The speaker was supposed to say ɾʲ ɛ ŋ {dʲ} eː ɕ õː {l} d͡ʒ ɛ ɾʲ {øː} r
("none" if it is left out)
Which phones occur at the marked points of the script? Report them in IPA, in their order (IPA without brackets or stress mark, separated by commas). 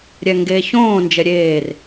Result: ɡ, n, eː